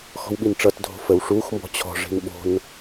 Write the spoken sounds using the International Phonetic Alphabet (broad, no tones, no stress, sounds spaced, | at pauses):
x ɔ̤ w ɓ i n ʈ͡ʂ ʌ t dʱ o̤ f ə w ʂ u x m b ɔ̤ t͡ɕʰ ɔ̤ ʐ i̤ n ɓ o̤ n